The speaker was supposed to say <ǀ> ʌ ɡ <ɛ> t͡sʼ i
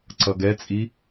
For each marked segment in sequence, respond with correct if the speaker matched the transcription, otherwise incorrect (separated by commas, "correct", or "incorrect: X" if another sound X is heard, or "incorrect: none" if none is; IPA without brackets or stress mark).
correct, correct